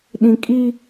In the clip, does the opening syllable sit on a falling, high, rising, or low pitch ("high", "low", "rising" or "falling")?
low